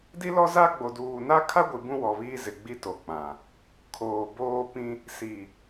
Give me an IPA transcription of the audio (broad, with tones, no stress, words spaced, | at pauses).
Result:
di˦lɔ˦za˦ ɡ͡bo˨duː˨na˦ kʰa˦ɡʷi˨ bũ˦wɔ˨βiː˦ zɪ˨ɡ͡bi˦ to˨k͡pã˨ | kʰoː˨boː˦ pĩ˦ | si˨